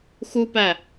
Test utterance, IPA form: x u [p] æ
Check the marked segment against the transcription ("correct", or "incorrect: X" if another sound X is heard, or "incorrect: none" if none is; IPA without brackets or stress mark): correct